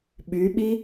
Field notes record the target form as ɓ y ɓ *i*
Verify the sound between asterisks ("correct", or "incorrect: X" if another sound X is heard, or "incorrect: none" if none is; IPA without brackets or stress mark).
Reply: correct